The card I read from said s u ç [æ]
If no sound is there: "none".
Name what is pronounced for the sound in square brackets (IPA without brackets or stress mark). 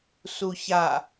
a